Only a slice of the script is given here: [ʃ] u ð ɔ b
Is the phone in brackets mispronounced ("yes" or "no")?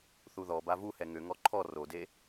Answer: yes